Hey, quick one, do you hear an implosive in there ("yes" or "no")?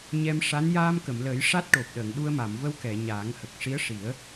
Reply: yes